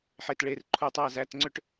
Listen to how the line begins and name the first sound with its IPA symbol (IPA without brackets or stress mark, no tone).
ħ